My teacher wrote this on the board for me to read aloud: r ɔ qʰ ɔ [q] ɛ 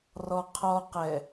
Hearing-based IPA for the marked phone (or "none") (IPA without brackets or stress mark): q